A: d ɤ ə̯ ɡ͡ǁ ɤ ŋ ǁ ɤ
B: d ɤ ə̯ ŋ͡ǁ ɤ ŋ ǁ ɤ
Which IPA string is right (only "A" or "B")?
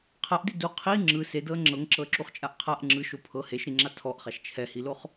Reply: B